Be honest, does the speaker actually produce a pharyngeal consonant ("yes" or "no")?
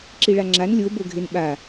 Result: no